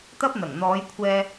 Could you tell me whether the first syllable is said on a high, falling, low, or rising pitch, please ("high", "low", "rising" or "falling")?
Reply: high